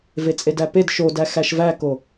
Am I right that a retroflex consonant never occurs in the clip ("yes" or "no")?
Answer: yes